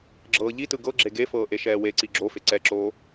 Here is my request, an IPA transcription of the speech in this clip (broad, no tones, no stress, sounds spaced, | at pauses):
ɡ͡ǁ ɤː ʎ i t ɯ ɡ ɤ ɡ͡ǁ e ɡ e f ɤː ʔ e ʃ ɛː w e ǀ i ɡ͡ǁ o f e ǀ ɛ ǁ oː